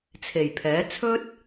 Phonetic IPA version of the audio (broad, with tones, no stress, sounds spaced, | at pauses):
t͡sʰ e˨˩ j pʰ ɛː˨˥ t͡sʰ ɵ˥ t̚